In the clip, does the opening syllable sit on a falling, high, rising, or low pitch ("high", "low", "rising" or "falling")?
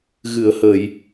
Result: low